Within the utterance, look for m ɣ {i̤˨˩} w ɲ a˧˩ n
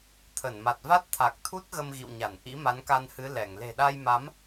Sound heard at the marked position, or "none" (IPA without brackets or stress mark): ḭ˧˨